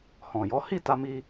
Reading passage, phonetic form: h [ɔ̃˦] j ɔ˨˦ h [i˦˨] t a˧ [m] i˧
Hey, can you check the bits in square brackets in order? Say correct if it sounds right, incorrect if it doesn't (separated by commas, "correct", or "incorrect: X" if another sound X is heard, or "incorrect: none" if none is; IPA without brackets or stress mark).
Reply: incorrect: ɔ̃˨, correct, correct